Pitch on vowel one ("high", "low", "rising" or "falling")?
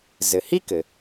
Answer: low